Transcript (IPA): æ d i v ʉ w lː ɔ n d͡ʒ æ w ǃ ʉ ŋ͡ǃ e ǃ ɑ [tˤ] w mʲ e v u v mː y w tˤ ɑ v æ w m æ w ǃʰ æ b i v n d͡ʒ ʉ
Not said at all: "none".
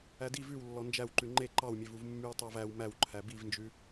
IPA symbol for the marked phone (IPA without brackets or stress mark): none